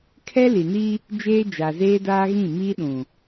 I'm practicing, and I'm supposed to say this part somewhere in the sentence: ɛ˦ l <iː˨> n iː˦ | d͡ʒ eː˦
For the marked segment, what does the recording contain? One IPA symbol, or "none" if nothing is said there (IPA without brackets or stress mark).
i˨